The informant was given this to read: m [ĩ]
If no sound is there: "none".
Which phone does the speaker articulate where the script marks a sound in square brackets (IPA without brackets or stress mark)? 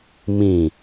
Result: ĩ